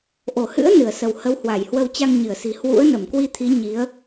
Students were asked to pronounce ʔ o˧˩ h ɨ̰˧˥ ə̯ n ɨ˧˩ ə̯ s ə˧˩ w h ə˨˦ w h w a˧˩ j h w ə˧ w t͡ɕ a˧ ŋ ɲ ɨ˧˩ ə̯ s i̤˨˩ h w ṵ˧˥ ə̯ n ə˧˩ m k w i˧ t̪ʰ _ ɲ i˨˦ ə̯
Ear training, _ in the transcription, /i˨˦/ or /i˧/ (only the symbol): i˨˦